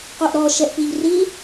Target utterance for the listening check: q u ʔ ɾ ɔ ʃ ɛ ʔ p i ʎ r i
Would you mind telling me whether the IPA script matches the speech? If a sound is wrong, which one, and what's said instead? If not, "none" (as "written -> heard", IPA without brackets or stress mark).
none